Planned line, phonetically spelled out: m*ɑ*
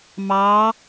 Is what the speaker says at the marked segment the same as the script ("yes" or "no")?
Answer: yes